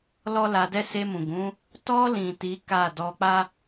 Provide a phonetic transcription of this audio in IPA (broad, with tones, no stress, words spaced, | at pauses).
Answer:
lɔ˦la˧dɛ˦ se˧mũ˨ɡũ˨˦ | tɔ˧lĩ˨ ti˨˦ ka˦˨ dɔ˧k͡pa˦